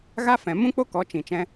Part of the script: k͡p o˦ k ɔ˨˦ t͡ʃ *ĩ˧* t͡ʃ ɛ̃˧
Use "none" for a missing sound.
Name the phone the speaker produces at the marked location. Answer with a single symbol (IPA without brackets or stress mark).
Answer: ĩ˨